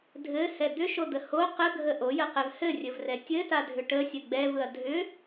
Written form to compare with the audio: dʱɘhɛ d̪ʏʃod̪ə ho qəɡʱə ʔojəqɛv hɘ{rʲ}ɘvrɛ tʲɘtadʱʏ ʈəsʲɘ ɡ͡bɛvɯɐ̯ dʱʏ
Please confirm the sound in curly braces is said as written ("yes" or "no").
yes